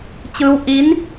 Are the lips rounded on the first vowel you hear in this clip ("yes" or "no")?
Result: no